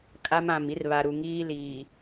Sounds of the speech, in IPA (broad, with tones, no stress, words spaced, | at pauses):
kʼa˦m ã˨mi˦rβa˨ɾu˨ ŋiː˦liː˨